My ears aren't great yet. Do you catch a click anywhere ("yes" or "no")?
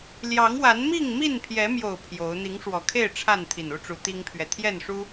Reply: no